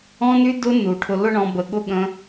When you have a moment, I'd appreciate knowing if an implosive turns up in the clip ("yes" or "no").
yes